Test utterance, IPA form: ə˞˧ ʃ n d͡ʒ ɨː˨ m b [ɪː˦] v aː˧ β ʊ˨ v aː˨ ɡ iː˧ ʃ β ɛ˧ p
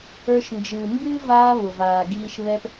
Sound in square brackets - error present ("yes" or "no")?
yes